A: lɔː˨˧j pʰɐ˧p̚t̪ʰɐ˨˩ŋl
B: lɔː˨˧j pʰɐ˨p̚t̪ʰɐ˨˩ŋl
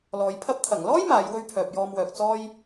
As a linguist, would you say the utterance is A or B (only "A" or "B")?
A